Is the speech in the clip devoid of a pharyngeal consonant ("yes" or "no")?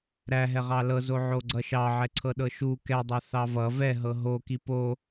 no